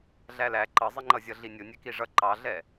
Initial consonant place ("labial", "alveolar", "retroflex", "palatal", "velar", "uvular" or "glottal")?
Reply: alveolar